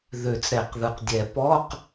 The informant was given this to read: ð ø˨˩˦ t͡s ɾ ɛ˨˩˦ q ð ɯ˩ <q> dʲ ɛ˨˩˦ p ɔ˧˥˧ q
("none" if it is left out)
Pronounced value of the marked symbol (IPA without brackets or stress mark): q